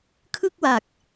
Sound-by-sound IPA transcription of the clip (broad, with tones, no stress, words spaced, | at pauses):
kʰɯ˥˩k̚wa˨˩k̚